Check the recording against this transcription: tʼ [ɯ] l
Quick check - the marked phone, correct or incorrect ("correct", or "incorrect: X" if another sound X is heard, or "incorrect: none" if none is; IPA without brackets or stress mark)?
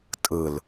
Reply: correct